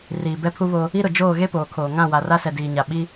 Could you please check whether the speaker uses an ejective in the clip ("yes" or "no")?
no